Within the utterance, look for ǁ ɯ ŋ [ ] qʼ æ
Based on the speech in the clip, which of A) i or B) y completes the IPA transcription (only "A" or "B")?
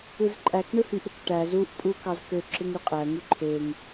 B